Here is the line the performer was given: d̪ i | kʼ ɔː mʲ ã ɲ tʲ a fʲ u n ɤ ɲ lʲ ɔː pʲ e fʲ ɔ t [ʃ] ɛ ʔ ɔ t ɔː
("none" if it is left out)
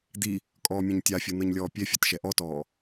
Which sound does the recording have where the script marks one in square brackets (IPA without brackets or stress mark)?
ʃ